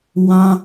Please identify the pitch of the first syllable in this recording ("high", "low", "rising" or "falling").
high